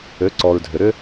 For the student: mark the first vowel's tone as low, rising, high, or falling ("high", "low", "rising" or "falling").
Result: rising